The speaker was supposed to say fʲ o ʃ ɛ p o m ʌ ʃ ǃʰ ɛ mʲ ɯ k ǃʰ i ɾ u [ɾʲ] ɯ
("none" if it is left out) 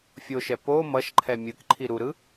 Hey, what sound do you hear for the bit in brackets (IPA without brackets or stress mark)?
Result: ɾ